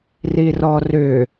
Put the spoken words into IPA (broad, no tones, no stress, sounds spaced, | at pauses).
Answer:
r i r ɔ r ʏ